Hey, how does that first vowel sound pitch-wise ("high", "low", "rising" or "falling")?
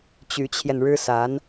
rising